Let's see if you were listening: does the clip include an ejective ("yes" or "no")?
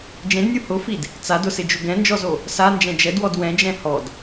no